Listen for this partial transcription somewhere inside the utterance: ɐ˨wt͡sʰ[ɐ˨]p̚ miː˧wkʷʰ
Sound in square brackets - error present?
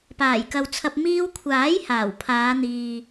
yes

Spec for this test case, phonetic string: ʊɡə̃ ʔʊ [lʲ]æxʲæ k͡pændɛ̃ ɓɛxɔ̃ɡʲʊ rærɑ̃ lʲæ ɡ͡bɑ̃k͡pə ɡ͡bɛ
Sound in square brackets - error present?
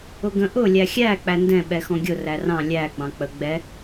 no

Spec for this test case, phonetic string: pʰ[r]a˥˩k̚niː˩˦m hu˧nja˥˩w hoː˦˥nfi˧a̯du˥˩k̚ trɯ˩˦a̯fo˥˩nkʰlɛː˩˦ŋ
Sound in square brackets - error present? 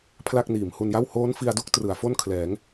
yes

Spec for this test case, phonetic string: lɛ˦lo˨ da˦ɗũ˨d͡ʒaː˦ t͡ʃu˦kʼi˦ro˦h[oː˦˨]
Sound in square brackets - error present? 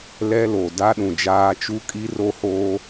yes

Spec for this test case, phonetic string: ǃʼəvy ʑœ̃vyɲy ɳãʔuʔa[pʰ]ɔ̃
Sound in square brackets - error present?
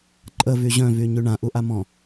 yes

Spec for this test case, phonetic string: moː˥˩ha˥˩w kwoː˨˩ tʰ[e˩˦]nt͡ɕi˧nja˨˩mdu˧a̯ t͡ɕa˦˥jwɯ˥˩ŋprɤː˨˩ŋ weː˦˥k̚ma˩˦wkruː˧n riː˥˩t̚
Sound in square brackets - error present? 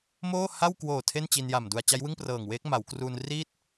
yes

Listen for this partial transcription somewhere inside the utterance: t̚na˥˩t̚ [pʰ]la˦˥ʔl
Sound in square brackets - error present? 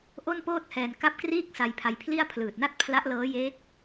no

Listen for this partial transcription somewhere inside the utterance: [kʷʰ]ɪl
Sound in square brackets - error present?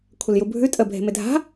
no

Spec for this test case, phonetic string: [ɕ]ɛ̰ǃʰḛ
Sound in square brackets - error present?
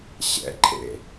no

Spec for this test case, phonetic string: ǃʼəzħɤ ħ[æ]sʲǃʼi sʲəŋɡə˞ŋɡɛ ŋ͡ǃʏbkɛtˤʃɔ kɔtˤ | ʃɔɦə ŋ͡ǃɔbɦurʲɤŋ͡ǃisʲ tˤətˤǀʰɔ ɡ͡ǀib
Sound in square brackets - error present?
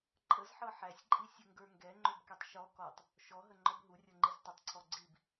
no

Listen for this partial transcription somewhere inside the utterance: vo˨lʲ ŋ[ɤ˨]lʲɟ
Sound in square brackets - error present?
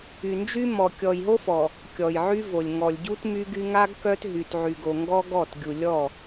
yes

